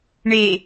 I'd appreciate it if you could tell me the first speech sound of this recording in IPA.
ɳ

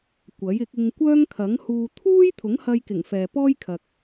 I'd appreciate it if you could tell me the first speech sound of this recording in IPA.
kʷ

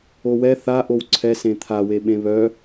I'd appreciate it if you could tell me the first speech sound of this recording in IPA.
o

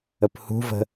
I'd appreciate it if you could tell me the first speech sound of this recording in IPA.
ə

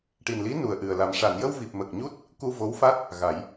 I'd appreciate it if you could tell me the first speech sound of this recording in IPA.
ʈ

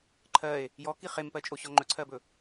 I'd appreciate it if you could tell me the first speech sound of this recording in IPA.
ǃʰ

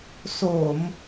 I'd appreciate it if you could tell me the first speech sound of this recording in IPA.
s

